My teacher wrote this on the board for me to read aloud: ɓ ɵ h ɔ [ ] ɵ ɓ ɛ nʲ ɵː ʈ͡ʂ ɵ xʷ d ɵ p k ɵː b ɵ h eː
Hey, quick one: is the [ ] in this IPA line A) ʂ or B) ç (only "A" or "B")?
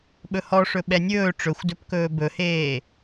A